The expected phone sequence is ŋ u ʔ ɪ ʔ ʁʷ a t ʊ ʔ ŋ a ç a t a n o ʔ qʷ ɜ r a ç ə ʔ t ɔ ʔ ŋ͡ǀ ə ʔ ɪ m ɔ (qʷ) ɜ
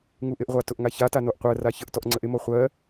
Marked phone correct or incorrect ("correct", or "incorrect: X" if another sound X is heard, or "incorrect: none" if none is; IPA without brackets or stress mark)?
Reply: incorrect: χʷ